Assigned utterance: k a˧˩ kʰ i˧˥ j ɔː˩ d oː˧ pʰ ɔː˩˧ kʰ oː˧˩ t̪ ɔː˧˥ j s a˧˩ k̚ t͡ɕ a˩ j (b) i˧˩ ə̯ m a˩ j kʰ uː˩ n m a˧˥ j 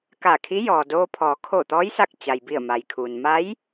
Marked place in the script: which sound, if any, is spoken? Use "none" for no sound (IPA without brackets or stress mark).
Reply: b